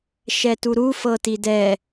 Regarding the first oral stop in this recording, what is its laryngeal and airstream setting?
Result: plain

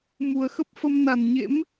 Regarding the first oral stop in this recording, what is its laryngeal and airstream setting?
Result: plain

